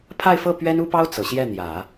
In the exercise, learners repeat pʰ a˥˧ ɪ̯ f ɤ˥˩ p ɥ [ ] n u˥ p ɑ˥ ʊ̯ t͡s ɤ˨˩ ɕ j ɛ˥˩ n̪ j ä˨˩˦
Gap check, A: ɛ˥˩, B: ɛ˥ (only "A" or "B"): B